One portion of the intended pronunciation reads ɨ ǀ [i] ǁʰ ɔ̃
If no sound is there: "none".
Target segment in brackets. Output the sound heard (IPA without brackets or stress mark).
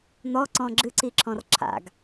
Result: i